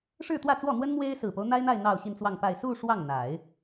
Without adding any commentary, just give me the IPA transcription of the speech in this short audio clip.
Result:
ʂ ɻ̩˥˧ t̪ w ä˥˧ t͡s w ɔ˥˩ n̪ w ə˥ n m w e˥ ɪ̯ s ɹ̩˨˩ p o˦ ʊ̯ n̪ a˥ ɪ̯ n̪ a˥˧ ɪ̯ n̪ ɑ˥˧ ʊ̯ ɕ i˥˧ n t͡s w ɑ˥˧ ŋ p a˥˧ ɪ̯ s u˥˧ ʂ w ɑ˥˩ ŋ n̪ a˨˩˦ ɪ̯

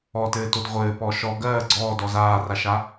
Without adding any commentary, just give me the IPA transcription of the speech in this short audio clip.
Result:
ɔ t ɘː t o d ʁʷ ɘː p ɔ ʃ ɔ ɡ ɜː ɡ͡ǀ ɔː d ɔ z aː r a ʃ a

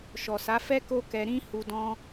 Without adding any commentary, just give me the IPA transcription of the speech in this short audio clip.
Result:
ʃ ɔ˨ s a˨˦ f ɛ˦ k o˦ k ɛ˧ ɾ ĩ˦ h u˧ d ɔ̃˦

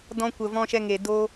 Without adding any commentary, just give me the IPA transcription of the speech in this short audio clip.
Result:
d ɔ̃˧ kʷ ə˨ v ɔ̃˧ ʃ ɛ˧ ŋ e˨ d o˦

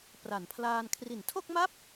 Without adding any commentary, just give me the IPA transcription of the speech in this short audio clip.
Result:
p r a˩˦ n pʰ l aː˧ n kʰ r i˩˦ n tʰ o˥˩ k̚ m a˥˩ p̚

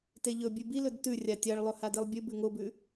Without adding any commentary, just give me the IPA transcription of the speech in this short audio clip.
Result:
t e ʎ ɵ bʲ ʉ b i l ɵ d t ʉ rʲ a tʲ a ɭ lˠ ɵ h a d i lˠ bʲ ʉ b ʉ ŋ o b ʉ

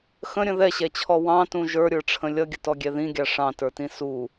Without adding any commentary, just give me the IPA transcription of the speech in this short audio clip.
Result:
x ə̃ ɾʲ ə̃ ð ɛ ɕ ɛ t͡ɕʰ ɔ w ɑ̃ t ũ ʒ ə˞ ɾʲ ə˞ ʈ͡ʂʰ ə̃ lʲ ʌ ɡʲ ə t ɔ ɡʲ ɛ ð ĩ ɡʲ ɑ ʂ ɑ̃ t ə˞ t ĩ s u

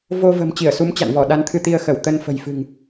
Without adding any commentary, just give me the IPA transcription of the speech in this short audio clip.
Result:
v o˧ v ə̤˨˩ m t͡ɕ i˧˩ ə̯ s u˨˦ m t͡ɕ a̰˧˨ n v ɔ˧˩ ɗ a˨˦ n t̪ʰ ɨ˧ t̪ i˧ ə̯ x ə˧˩ w t̪ ə˧ n f ə̤˨˩ j f ɨ̤˨˩ ŋ

